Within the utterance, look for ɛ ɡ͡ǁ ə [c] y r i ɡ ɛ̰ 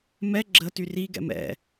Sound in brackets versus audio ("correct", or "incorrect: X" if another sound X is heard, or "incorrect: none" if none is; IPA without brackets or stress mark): incorrect: t